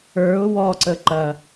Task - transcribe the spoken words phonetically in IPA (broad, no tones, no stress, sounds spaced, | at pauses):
ə˞ ʊ̯ w ɔ ǀ ə ǃ ɐ